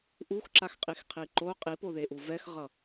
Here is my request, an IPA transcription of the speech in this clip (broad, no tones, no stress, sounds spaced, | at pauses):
ʔ u x ǁ a x qʼ i x qʰ i ǃ o qʼ i p o ð e ʔ u v ɛ x ʁ ʌ